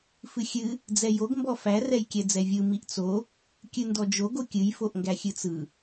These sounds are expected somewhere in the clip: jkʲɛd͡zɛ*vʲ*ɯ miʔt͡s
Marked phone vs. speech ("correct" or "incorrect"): correct